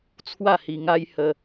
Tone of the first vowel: falling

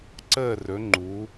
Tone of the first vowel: falling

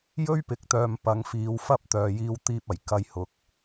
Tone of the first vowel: high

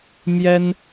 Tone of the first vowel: high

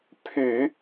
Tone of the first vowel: low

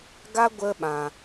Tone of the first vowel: high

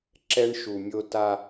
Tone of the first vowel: high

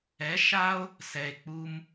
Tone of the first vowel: rising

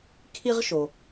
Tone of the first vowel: high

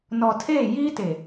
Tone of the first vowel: low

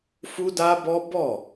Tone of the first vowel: high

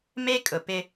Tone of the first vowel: high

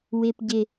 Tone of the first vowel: low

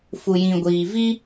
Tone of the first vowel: low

